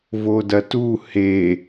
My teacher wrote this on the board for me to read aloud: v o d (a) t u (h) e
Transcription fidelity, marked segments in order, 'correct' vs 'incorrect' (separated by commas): incorrect, correct